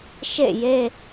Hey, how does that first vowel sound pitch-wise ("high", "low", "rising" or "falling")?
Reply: falling